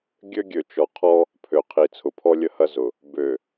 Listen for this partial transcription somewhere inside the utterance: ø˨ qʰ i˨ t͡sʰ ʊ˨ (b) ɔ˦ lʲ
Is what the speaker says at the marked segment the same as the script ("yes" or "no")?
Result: no